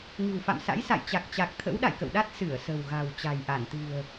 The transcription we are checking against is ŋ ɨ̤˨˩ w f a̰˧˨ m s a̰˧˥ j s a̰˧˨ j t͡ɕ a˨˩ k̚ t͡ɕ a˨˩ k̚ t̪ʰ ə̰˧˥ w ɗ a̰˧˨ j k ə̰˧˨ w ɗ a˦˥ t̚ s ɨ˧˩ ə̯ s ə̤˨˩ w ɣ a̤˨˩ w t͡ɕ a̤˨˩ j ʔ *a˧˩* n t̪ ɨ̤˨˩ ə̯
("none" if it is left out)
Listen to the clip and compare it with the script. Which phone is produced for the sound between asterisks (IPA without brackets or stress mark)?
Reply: a˧˩